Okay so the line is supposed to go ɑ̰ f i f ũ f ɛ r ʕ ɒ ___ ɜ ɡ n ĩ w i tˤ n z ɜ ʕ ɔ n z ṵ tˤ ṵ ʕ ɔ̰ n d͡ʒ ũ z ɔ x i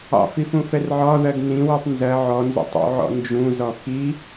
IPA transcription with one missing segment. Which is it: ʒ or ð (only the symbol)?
ð